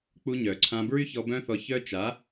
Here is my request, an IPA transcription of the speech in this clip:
k͡p u˧ ɲ œ˨ ǀʰ ã˧ b ɹ y˦ ç ɔ˧ b œ̃˦ θ ɔ˧ ç œ˦ t͡ʃ a˨˦

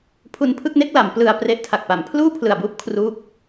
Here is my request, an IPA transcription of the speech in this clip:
pʰ u˧ n pʰ ɯ˥˩ k̚ n e˥˩ k̚ l a˩˦ m p l ɯ˧ a̯ p r e˦˥ ʔ tʰ a˨˩ k̚ p a˨˩ m pʰ l uː˥˩ pʰ l ɯ˨˩ a̯ b uː˦˥ p̚ kʰ r uː˥˩ k̚

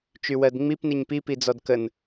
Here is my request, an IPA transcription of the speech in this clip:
t͡ʃ y w ɜ d ŋ͡m i p n i ɲ p i p i d͡z ɔ d k ə n

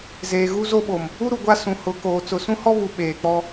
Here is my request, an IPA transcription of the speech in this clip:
z eː˨ ɣ u˦ z o˦ ɓ o˨ m | u˦ ɾ u˨ ɡʷ a˦ s ũ˨ h ʊ˨˦ k oː˨ t͡s ʊ˨ s ũ˦ h ɔ˦ β u˨ ɓ eː˨ k͡p ɔ˦

